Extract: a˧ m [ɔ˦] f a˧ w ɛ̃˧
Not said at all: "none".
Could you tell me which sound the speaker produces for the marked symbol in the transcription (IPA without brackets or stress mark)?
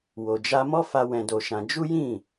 ɔ˦